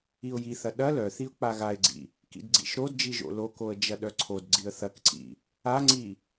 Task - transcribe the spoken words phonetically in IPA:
iʊ̯jiθɐ ɗɐ lœθiʊ̯ k͡paɣaɪ̯ɡ͡ǀḭ | kḭdɡ͡ǀḭʃɾodd͡ʒi ʒo̰lokoə̯ d͡ʒɐɗœǀʰodɡ͡ǀiə̯ θɐkǀḭ | aŋ͡ǀi

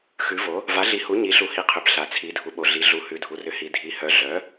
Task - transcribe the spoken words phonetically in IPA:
xʉ˩˥vo˩˥ | va˩˥ɮi˩˥hu˩˥ ɲi˩˥ɬu˩˥hi˩˥qʰʏ˩˧b ɬa˩˧t͡sʰi˩˥dʱu˩˥ɓo˩˧ ɮi˩˧ ɮu˩˧ hʉ˩˧dʱu˩˧rʏ˩˥hi˩˧ dʱi˩˥hœ˩˥ ɮœ˩˥

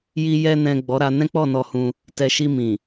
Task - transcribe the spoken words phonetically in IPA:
ji˨jɛ˨nɛ̃˨ ɡ͡bɔ˨˦ ɾa˧nɛ̃˦ k͡pɔ˦˨nɔ˧hũ˧ | tɛ˨ʃi˧ mĩ˨

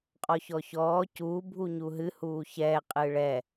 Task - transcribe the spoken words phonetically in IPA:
qʼɔçɔçɔː cuː bʱuɲuɦɨ huːçɛː qʼɨːɭɛ

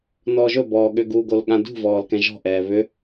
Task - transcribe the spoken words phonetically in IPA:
nɔːʒɵbɔː ɠʏɡuɡol ɠãdṳvɔːl kɛ̃ʒɔ̤ʔɛː βʏ

